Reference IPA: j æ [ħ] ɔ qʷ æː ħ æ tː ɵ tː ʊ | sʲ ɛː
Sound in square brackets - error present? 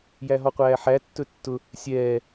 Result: yes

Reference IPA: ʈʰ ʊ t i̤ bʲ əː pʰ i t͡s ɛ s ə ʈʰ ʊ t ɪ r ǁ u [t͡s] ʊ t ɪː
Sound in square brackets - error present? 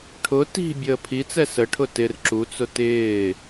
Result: no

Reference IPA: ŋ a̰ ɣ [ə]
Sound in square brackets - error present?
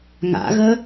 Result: no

